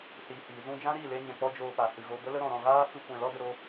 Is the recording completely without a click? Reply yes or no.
yes